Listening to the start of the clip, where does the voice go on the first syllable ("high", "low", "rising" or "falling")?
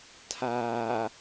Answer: low